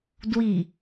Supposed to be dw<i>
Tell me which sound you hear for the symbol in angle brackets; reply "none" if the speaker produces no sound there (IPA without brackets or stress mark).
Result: i